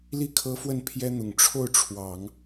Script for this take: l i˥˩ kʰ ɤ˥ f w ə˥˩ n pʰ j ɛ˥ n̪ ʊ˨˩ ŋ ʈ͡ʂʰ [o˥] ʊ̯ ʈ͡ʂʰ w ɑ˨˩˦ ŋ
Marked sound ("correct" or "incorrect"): incorrect